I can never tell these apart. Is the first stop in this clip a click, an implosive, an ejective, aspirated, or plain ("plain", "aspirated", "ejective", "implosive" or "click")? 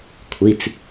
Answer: aspirated